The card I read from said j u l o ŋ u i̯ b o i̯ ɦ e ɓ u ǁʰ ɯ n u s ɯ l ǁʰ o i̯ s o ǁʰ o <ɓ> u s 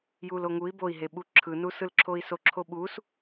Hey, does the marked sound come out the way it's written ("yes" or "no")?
yes